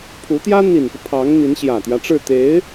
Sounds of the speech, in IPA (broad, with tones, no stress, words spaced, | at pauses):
pʰu˧˥t̪jä˥ n̪i˨˩nfɤ˦ pʰɑ˧˥ŋn̪i˧˥n ɕjä˨˩t̪jä˦ʈ͡ʂɻ̩˥˩ t̪e˧˥ɪ̯